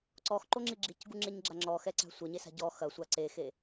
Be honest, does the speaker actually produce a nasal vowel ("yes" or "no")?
no